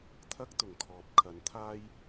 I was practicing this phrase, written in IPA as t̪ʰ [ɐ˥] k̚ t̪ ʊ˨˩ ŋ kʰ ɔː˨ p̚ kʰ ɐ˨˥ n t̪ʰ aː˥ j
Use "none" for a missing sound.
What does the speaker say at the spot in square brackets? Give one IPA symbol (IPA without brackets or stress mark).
ɐ˥